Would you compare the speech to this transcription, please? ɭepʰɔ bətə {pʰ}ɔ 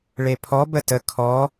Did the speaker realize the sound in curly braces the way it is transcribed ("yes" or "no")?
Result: no